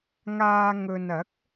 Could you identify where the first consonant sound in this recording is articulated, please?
velar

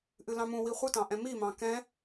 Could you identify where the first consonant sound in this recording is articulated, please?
glottal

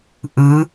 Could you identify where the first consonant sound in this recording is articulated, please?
glottal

